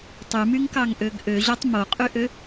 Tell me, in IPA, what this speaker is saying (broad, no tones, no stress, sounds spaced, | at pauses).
tˤ y m y ŋ k ɑ ŋ ʔ ø ɡ ʔ ø ʑ o tˤ m o qʼ y ʔ ø